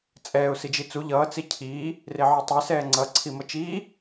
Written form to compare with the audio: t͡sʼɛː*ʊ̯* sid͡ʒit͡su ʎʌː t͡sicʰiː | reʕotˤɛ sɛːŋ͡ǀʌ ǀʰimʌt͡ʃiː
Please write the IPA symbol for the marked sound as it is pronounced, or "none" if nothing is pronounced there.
ʊ̯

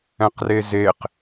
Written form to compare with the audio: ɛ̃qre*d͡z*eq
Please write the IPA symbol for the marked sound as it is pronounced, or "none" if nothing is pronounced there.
z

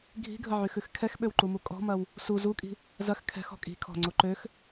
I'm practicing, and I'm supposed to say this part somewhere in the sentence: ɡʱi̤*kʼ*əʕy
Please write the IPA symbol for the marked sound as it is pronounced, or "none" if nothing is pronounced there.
ɡʱ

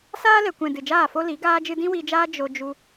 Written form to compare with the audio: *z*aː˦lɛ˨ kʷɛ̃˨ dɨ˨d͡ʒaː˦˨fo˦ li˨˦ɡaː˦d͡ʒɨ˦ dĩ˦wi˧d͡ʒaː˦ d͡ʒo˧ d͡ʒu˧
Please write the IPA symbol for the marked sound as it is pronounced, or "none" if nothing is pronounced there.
s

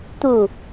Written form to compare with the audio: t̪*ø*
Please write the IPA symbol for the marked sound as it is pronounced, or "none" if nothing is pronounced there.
u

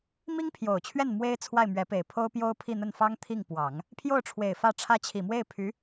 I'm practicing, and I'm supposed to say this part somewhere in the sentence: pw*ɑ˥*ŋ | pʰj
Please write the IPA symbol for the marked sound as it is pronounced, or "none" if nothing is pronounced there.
ɑ˨˩˦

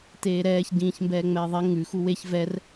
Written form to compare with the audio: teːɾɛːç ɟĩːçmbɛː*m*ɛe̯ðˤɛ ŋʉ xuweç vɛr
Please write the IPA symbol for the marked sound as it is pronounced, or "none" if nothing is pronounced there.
ŋ͡m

